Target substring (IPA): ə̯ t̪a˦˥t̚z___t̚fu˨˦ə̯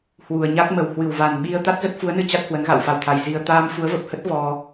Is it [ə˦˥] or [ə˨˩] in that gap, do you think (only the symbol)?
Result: ə˦˥